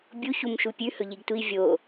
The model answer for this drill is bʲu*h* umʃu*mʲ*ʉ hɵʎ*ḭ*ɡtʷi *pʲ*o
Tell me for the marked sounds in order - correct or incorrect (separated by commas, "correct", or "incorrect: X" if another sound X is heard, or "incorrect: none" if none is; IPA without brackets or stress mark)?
incorrect: ç, incorrect: pʲ, incorrect: i, incorrect: vʲ